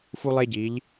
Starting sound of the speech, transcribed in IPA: f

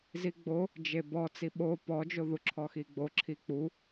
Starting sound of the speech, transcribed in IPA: z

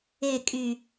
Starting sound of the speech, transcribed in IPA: e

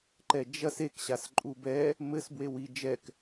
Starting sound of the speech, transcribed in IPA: ǃ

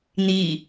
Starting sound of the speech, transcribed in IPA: n̪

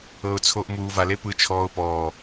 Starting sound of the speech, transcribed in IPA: ɤ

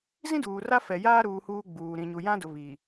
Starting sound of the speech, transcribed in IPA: z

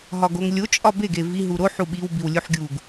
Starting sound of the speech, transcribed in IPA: ɦ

